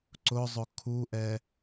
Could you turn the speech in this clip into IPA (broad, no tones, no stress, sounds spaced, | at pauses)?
ǀ ʊ zˤ ʊ kʰ u ʔ ɛ